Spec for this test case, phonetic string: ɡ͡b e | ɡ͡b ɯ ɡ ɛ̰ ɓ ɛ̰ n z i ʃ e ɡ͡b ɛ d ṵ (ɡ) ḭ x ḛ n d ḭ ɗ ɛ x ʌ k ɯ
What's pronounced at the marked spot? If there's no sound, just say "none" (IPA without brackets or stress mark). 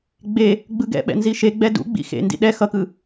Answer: ɡ͡b